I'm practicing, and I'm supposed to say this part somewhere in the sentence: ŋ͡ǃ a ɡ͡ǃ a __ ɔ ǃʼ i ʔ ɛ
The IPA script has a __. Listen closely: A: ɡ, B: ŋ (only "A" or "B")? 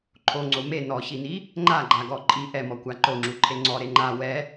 A